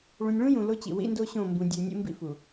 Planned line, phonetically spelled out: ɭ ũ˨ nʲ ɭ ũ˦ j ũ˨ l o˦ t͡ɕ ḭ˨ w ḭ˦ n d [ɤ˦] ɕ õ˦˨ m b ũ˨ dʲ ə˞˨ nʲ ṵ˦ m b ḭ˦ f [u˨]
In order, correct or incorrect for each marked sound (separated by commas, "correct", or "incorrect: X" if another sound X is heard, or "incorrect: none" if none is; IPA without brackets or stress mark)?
incorrect: o˦, correct